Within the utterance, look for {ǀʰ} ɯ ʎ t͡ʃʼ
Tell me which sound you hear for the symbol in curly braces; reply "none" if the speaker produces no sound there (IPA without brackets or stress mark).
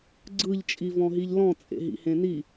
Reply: ɡ͡ǀ